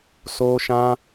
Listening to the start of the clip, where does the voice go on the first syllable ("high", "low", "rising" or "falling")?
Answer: high